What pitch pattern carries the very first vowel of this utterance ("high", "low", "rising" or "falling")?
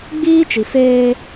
high